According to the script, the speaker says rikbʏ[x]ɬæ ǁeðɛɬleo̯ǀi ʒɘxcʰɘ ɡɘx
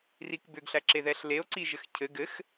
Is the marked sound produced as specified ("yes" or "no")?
no